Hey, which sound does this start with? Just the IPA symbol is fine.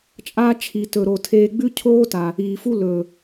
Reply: t͡ʃʼ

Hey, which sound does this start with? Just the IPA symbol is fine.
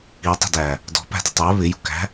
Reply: i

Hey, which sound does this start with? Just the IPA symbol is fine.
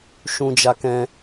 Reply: ʃ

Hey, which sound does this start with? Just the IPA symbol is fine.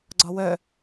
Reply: ɡ͡ǀ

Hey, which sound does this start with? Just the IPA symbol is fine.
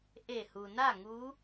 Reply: ʔ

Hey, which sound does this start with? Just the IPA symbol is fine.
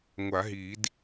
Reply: ŋʷ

